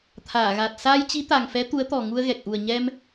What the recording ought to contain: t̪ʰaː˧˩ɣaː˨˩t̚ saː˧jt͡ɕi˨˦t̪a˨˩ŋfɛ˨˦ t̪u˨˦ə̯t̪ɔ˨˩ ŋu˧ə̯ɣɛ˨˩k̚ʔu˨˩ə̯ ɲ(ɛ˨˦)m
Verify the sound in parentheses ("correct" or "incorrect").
incorrect